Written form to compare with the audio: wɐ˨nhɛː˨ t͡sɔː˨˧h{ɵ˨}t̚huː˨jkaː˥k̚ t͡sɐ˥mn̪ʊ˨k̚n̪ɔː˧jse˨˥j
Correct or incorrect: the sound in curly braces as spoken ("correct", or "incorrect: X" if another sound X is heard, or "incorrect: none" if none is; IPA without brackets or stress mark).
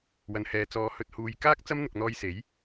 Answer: correct